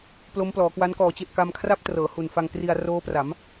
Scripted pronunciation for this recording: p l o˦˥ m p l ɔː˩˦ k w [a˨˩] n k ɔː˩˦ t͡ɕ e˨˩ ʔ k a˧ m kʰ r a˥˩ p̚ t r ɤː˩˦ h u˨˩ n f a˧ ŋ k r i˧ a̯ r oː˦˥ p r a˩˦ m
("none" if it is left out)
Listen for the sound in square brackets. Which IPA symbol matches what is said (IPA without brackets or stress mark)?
a˦˥